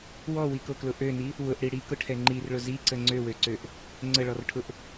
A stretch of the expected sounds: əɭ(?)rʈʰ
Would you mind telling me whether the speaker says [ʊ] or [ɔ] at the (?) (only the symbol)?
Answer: ɔ